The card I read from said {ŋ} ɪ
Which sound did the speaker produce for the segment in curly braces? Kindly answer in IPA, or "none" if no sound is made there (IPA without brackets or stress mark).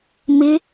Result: m